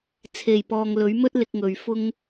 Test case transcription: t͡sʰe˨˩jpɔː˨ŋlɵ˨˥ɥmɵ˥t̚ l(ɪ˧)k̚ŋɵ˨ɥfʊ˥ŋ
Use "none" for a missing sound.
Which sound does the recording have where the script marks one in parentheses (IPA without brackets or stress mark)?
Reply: ɪ˧